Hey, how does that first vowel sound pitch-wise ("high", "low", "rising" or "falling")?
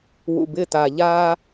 low